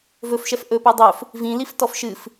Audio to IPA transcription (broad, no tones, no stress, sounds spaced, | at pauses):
v ɵ f ʃ ɛ f ʔ ɵ p ɛ dˤ ɵ f | v ĩ l i f t ɔ f ʃ ɨ f